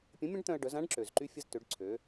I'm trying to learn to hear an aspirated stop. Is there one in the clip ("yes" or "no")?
yes